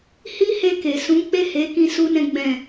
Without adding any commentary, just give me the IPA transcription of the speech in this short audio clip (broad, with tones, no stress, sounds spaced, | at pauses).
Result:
h i˦ h e˧ k e˨ s ũ˨˦ k͡p e˦˨ h e˨˦ k ĩ˦ s u˦ n ɛ̃˦ ɡ͡b ɛ̃˦˨